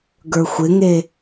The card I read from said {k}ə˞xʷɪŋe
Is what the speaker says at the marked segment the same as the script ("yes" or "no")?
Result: no